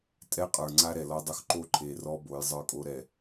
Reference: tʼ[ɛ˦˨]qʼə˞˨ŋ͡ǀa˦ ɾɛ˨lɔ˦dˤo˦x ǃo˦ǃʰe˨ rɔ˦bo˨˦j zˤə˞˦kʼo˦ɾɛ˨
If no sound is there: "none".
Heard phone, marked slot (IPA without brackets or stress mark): ɛ˦